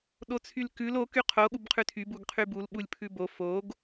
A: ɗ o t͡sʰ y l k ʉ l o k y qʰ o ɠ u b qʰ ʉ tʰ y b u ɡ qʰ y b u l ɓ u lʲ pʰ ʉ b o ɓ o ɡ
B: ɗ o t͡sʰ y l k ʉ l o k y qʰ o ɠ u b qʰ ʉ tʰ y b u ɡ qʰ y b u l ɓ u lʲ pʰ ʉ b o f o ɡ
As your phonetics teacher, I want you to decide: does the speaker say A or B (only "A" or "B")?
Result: B